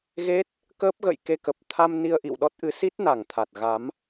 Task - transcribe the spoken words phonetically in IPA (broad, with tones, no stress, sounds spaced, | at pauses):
ɣ e˦˥ t̚ | k əː˦˥ p̚ ɣ ə̰˧˨ j k e˧ k ə˨˩ p̚ t̪ʰ a˧ m n i˧ ə̯ ʔ ḭ˧˨ w ɗ ɔ˦˥ t̚ ʔ ɨ˨˦ s i˦˥ t̚ n a˧˩ ŋ t̪ʰ a˨˩ t̚ ɣ a˨˦ m